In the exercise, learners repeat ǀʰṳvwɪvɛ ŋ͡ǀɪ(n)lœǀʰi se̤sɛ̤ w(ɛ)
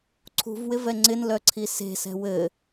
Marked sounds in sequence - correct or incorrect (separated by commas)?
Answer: correct, incorrect